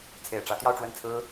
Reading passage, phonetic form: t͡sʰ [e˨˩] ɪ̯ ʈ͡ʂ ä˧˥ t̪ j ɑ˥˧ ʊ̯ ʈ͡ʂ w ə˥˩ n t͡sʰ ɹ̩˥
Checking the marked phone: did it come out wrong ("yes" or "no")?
no